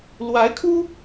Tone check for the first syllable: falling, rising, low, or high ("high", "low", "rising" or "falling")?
rising